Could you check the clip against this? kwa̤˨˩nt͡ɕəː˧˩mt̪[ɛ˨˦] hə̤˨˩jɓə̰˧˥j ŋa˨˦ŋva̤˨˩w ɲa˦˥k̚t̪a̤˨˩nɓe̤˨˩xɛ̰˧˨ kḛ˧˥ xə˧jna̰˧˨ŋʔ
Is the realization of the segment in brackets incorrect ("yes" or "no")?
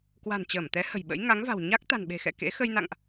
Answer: no